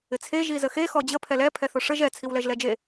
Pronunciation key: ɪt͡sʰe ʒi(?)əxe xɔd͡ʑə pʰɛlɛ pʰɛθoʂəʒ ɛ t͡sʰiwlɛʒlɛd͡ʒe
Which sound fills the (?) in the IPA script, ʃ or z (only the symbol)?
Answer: z